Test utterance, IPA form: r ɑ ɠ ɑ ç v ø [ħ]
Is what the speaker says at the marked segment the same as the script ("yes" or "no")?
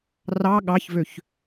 no